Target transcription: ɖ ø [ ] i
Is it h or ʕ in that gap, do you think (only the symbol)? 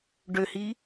h